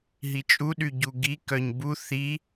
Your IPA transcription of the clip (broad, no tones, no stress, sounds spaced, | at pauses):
ɦ i t͡ʃʼ u ɗ y ɟ u ɡ i k œ ɲ b u θ i